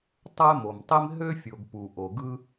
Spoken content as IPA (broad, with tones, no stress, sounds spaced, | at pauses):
tˤ æ˥ m o˩ m tˤ i˥ m ɦ ø˥ fʲ o˩ ɡ p u˩ ʔ o˩ ɡ ɯ˥